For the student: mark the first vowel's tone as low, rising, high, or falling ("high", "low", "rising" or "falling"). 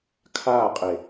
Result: falling